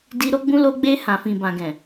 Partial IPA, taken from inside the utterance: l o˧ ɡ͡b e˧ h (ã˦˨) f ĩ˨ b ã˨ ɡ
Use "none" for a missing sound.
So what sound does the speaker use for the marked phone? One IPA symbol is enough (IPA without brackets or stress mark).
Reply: ã˨